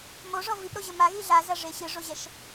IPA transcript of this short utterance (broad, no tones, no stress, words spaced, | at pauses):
moʐɔ vipɾoʑɘ maɣi ɮazɐʐe ɕɨʐoʑɛʃ